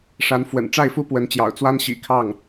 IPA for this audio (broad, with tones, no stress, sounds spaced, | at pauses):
ʂ a˧˥ n f w ə̰˨˩ n ʈ͡ʂ a˥˩ ɪ̯ f u˥ p w ə˧˥ n t͡ɕ j ɑ̰˨˩ ʊ̯ t͡s w a˥ n ɕ ḭ˨˩ kʰ ɑ˥˩ ŋ